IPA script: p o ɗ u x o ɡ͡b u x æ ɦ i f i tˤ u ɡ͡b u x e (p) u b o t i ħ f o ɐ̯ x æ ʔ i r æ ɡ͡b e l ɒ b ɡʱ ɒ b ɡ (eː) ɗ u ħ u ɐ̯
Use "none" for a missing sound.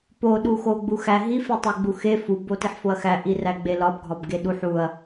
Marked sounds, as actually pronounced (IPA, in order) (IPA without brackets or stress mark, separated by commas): f, e